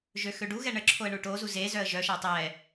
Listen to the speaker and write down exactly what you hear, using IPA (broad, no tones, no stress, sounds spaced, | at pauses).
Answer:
ʒ ø x ø ɖ u ɣ ɛ ɳ ə ǁʰ o ə̯ ɳ u ʈ o z u z e z œ ə̯ ʒ œ ʃ a tˤ ɛ